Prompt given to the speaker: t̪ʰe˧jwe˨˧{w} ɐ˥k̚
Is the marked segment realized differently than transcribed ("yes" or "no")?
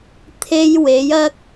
yes